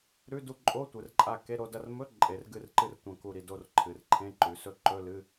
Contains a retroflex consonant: no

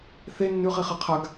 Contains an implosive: no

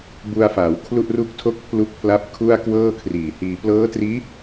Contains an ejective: no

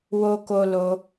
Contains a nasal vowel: no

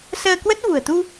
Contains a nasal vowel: no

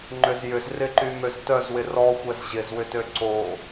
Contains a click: yes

